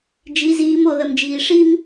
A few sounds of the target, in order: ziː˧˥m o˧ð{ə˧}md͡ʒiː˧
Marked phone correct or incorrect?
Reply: correct